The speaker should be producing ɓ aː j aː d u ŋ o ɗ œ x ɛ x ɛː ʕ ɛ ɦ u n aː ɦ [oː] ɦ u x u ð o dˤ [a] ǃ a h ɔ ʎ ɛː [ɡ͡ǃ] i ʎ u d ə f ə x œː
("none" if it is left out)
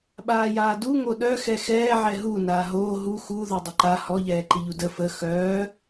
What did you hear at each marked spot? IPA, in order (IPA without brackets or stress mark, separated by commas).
oː, ə, ǃ